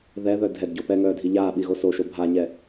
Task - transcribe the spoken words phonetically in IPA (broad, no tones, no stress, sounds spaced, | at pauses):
ð ɛ ð œ dʱ ɛ d ɟ o p ɛ ŋ œː dʱ i ʎ aː ɓ i ɣ o s o ʃ o bʱ a ɲ ɛ